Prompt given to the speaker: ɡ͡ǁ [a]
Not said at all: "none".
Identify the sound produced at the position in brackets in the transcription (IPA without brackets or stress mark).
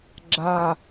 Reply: a